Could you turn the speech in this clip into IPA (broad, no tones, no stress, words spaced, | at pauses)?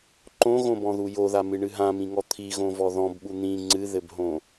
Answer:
ǃõɣõbɔ̃ðu joðamɨɳɨ ɦãmĩŋɔ t̪ʰiɣõvɔ ðɔ̃bɓu n̪ĩ ŋ͡ǀɨðɘbɦõ